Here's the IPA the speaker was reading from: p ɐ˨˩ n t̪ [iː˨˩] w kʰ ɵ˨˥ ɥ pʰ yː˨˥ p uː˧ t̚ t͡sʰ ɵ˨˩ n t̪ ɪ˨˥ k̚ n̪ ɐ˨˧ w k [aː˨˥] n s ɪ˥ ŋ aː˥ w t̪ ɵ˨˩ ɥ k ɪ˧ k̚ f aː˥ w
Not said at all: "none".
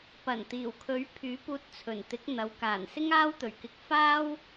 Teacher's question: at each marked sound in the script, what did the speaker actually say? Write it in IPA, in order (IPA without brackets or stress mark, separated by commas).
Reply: iː˨˩, aː˨˩